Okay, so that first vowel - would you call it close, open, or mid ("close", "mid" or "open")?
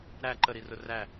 open